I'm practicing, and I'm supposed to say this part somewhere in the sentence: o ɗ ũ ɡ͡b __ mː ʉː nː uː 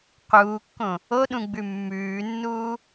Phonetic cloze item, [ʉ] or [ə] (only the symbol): ʉ